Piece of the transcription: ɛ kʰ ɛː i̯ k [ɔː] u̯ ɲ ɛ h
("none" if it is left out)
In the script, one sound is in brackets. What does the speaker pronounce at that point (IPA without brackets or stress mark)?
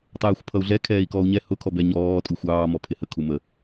ɔː